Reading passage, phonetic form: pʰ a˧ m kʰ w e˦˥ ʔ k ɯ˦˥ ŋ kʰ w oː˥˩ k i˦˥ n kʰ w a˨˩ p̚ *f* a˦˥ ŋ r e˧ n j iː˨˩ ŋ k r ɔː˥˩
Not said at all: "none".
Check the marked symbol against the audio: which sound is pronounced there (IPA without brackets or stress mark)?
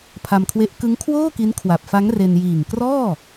f